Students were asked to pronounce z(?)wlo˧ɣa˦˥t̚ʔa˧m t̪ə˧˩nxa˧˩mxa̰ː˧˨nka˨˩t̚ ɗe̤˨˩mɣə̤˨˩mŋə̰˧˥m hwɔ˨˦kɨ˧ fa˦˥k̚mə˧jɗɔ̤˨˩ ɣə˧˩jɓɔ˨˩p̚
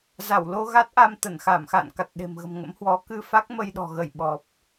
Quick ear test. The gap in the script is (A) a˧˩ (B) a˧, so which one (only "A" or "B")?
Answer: A